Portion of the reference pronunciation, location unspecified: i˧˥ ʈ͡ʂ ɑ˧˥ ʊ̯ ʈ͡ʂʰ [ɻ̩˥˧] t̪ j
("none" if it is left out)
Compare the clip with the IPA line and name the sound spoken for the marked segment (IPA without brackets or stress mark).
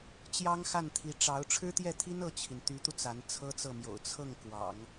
ɻ̩˥